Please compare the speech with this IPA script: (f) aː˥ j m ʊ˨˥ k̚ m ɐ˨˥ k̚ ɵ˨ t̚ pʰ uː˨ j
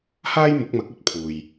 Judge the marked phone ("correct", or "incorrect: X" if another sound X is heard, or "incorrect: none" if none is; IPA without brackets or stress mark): incorrect: h